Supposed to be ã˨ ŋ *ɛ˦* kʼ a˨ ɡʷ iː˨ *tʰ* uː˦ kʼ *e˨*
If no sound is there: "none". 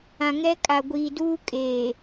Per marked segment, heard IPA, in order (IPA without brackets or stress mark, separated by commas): ɛ˦, d, eː˨